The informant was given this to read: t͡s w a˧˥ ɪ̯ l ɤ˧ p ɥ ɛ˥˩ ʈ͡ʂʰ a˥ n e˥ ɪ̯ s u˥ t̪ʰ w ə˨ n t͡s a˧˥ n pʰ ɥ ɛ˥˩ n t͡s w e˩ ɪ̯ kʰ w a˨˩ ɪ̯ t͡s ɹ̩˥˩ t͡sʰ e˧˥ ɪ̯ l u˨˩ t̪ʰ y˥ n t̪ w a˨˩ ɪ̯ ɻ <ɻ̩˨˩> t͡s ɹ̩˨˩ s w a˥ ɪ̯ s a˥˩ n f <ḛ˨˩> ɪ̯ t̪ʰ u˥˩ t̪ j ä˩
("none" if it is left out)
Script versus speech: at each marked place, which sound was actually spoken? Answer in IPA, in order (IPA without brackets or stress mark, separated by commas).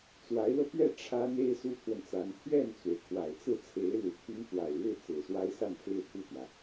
ɻ̩˥˩, e˥